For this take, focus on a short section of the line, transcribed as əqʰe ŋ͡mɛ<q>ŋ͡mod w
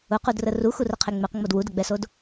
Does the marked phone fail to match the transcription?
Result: no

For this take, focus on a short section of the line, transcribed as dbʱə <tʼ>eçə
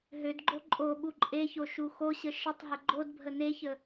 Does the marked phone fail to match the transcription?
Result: yes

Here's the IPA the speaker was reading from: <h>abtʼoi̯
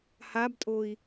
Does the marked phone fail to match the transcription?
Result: no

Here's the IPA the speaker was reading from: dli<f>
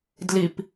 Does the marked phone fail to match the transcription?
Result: yes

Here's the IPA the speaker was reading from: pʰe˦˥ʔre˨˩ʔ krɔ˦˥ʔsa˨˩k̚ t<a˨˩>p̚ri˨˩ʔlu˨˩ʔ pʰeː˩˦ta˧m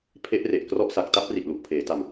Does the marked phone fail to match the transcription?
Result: yes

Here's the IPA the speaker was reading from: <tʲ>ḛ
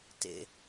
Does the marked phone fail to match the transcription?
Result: yes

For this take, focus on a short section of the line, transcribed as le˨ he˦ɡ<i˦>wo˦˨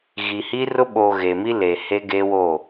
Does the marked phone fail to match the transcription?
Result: yes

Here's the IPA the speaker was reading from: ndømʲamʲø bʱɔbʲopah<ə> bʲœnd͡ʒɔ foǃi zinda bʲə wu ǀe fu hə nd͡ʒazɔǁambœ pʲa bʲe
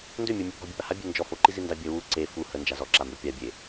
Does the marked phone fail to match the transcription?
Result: yes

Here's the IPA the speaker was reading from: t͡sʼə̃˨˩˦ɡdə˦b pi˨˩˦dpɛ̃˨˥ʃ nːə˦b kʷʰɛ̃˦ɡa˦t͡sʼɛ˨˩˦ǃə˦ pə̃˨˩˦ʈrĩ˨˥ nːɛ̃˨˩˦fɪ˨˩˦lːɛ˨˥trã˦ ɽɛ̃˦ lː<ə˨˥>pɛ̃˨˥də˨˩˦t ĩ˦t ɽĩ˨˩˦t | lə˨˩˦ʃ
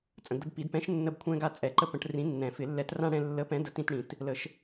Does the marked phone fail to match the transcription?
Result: no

